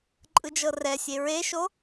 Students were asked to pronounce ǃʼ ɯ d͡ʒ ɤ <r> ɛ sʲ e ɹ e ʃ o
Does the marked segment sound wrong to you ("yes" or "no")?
no